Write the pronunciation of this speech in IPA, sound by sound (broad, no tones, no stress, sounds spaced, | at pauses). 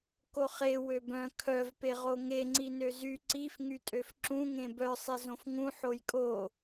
k o χ e w ø b œ̃ kʰ œ v p e ʁ o ŋ e ŋ͡ǀ i n ø z y ǀ i f ŋ y tʼ ø f ǁ ũ ŋ ẽ b œ sˤ e z õ f ŋ ũ ħ o j kʼ o